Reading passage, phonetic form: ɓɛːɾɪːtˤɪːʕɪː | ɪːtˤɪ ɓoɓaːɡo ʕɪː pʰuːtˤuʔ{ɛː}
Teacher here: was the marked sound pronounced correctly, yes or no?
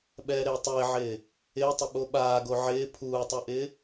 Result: no